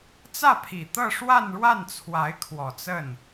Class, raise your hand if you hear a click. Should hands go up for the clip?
no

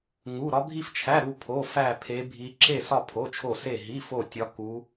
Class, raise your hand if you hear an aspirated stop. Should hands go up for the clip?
yes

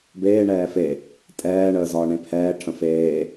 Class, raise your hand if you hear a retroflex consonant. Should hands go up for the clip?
yes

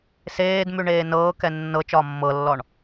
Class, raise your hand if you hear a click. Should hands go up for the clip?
no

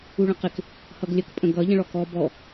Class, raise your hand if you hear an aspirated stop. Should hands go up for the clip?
no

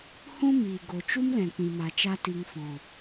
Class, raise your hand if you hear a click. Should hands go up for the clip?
no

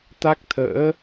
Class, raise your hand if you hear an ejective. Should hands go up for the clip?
no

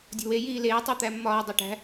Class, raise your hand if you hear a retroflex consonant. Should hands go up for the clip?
yes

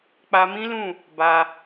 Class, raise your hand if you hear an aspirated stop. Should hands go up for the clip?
no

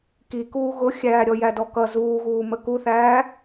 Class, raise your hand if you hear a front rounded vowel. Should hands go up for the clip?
no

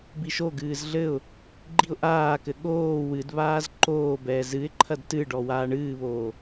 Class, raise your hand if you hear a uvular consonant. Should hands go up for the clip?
no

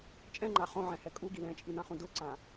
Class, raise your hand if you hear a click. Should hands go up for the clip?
yes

